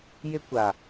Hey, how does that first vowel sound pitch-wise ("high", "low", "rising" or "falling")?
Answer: high